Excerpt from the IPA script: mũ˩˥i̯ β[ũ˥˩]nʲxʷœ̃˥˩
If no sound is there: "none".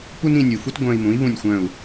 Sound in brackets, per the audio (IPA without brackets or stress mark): ũ˥˩